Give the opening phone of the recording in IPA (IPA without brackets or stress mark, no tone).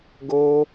ɡ